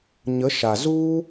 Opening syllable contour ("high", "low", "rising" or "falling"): rising